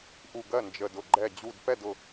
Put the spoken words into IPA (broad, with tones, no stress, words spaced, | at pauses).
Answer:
ʔu˧˩ɡɜ˥˩ nd͡ʒə˧˩dʊ˧˩ ɡ͡ǃɛ˧˩d͡ʑu˧˩dpɛ˥˩d ʊ˧˩